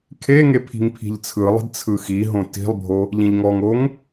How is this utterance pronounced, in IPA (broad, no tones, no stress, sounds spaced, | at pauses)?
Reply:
kʰ e ŋ e pʰ i̤ ŋ pʰ i̤ ʎ t͡sʰ ɯ lˠ i̤ d t͡sʰ ɯ x i ɦ õ t i̤ lˠ bʱ o | ʎ ĩ ʎ ŋ ɔ ŋ o ŋ